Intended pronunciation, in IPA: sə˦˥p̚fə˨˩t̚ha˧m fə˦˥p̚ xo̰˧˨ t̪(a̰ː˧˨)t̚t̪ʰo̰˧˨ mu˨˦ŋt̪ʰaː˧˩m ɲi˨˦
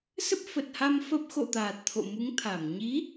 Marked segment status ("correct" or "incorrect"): incorrect